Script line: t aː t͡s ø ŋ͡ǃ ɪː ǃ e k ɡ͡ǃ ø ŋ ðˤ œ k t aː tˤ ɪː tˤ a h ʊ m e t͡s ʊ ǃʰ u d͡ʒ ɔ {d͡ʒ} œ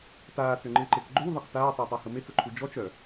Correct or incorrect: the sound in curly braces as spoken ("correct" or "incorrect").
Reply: incorrect